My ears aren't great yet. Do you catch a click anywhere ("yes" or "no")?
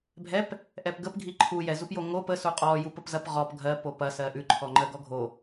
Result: yes